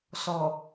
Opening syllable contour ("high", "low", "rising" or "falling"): low